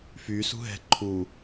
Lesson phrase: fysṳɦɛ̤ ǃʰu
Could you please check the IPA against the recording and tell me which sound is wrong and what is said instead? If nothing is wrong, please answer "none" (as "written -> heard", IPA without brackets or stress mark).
none